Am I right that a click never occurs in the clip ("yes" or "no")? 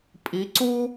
no